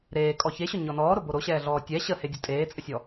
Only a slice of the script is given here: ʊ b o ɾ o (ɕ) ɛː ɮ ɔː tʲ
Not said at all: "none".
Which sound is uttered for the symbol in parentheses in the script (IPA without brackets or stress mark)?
ɕ